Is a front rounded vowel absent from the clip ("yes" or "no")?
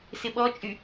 no